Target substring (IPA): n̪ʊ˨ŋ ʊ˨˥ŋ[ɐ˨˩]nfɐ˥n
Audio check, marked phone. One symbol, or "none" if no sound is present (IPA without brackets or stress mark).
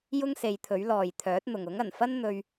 ɐ˨˩